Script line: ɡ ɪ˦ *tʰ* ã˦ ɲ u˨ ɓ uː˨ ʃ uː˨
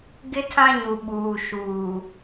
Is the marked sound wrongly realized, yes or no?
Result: no